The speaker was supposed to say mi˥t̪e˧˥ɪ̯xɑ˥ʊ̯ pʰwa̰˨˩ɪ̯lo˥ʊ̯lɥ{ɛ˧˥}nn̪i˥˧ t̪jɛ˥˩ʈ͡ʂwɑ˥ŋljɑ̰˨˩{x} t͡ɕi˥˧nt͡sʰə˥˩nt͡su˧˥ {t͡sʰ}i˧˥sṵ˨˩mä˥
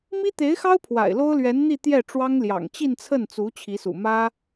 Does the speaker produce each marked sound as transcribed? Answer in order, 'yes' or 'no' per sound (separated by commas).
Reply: yes, no, no